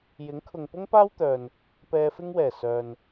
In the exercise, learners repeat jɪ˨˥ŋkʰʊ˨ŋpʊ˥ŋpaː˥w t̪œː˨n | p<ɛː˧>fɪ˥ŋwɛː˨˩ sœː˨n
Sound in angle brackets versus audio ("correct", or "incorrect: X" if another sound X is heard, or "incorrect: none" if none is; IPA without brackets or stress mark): correct